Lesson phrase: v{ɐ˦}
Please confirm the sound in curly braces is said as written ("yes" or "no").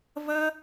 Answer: yes